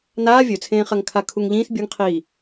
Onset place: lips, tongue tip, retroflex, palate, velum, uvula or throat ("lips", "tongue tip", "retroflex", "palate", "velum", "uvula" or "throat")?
tongue tip